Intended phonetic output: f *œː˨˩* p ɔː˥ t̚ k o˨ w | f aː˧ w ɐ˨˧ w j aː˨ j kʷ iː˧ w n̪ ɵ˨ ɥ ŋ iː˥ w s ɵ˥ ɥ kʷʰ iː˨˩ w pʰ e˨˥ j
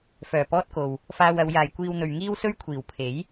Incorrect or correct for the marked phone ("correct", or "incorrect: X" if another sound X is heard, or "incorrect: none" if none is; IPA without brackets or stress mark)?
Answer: correct